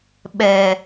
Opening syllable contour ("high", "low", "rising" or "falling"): low